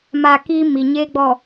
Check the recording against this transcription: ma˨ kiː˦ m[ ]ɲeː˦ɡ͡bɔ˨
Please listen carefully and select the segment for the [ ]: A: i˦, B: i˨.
B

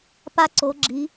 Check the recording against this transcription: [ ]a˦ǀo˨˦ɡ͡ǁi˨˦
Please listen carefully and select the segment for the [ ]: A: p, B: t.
A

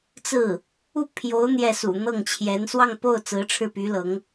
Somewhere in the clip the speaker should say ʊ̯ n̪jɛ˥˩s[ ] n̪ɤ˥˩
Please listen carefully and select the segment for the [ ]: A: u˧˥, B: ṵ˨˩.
B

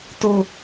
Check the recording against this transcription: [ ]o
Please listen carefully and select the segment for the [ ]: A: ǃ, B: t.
B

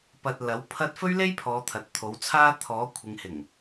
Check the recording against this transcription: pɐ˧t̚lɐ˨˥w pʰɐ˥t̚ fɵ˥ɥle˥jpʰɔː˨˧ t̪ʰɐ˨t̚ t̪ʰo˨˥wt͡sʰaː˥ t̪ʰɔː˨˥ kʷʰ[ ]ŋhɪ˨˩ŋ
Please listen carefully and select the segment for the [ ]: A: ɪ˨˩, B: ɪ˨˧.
B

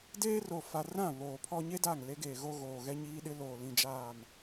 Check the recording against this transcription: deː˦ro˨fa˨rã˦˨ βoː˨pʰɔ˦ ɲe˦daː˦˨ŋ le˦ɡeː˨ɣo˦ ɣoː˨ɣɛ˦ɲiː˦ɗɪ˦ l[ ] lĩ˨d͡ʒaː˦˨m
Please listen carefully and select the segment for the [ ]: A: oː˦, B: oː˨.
B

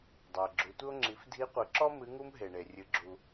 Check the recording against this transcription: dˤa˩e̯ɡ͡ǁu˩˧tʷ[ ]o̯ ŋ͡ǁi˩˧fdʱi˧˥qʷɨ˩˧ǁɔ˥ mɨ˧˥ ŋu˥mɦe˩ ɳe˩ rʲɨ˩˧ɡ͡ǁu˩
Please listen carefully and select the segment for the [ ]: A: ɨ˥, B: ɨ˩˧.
A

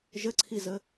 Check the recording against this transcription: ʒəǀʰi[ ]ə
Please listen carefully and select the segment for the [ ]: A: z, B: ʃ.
A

